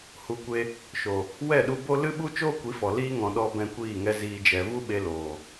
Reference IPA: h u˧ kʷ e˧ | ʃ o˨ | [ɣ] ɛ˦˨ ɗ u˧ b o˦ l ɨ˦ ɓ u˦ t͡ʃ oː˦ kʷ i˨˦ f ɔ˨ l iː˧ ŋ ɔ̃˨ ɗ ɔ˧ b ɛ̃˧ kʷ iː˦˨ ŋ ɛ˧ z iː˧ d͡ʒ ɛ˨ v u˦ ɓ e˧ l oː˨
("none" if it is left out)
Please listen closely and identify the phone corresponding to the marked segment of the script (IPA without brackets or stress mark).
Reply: w